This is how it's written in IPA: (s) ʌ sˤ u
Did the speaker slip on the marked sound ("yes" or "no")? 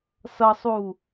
no